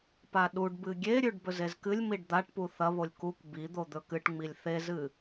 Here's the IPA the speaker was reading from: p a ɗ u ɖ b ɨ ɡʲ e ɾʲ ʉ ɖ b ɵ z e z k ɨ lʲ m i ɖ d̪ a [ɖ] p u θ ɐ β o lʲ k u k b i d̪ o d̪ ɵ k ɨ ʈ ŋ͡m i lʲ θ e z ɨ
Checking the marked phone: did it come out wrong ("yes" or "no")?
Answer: yes